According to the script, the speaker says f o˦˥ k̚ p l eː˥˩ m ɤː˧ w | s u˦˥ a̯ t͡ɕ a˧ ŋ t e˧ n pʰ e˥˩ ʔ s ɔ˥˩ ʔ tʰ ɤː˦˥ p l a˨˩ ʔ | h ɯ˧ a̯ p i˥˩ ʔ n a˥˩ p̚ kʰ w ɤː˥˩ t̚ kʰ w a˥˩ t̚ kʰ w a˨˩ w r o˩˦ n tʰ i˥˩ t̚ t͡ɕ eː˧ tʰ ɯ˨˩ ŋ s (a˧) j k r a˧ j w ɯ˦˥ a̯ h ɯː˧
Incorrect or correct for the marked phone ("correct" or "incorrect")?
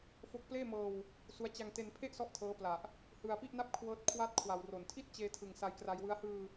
correct